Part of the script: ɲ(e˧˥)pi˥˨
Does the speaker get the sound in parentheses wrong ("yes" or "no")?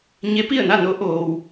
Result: no